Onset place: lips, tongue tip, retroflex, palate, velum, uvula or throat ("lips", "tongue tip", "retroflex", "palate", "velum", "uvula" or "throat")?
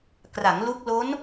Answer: velum